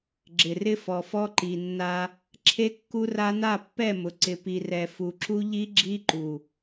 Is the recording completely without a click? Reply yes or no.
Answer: no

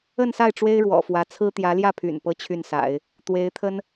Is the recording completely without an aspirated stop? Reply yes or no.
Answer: no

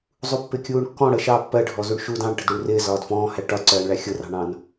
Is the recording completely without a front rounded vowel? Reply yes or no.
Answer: yes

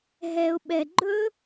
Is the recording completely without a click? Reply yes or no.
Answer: no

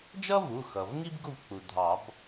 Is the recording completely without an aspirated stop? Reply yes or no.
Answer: yes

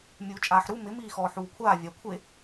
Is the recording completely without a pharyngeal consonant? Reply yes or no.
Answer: no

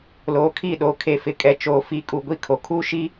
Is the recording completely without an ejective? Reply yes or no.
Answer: no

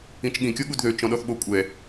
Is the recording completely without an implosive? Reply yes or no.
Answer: no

